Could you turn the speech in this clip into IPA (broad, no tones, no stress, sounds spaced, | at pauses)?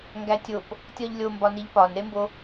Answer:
ŋ ɡ æ tʲ o p | tʲ ɒ ʎ lʲ o m b ɒ n i ʎ p ɒ n ɾ e m b o